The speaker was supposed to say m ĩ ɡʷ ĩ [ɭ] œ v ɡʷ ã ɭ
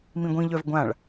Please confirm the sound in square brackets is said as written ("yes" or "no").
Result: no